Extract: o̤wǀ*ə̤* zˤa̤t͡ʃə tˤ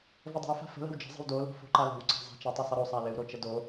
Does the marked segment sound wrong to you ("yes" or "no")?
yes